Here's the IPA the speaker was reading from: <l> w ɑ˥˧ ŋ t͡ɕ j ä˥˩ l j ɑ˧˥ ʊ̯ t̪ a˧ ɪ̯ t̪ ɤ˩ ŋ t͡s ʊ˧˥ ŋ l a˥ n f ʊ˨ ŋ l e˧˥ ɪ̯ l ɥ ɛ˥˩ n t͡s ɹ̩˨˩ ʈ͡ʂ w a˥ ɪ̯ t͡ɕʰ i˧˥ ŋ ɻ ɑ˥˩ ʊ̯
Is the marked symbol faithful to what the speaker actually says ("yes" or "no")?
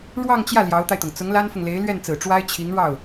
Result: no